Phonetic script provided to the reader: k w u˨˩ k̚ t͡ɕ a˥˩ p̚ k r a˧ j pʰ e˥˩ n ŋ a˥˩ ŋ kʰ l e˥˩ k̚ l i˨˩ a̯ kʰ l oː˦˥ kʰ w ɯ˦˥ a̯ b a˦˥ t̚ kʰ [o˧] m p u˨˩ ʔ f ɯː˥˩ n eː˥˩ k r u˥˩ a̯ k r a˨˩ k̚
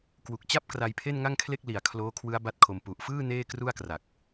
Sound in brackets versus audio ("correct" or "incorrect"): correct